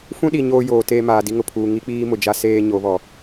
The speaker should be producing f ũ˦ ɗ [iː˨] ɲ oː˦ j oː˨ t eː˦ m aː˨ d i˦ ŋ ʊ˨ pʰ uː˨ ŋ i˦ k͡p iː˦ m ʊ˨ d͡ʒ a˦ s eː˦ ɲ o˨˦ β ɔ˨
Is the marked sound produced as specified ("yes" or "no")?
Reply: no